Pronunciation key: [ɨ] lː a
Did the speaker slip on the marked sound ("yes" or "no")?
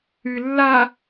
no